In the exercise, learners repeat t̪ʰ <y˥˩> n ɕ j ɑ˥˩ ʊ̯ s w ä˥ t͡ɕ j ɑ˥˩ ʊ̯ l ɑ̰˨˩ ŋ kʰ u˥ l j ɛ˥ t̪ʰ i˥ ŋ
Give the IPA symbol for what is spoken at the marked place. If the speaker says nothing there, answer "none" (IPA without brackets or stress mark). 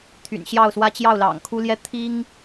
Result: y̰˨˩